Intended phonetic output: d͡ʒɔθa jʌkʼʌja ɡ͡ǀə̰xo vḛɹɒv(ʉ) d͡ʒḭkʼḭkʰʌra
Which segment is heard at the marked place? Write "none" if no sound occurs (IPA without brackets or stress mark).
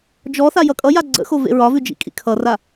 ʉ